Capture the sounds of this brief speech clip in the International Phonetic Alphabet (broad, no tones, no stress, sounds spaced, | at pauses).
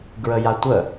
ɡ ɹ ə j a tʷ ə